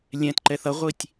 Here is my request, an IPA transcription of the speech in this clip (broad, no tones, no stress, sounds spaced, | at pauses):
lʲ ɛ̃ t ǃ ɛ θ ʌ ʁʷ i tʲ